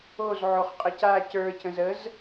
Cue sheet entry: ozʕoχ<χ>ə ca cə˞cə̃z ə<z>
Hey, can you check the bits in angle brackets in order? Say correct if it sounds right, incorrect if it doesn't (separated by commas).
incorrect, correct